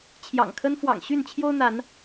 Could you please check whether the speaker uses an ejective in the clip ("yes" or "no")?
no